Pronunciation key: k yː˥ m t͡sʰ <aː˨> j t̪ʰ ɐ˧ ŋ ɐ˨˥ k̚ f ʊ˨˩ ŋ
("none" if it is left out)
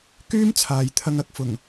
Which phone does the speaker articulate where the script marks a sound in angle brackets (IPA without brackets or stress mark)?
aː˨